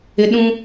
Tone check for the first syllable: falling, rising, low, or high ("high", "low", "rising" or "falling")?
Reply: high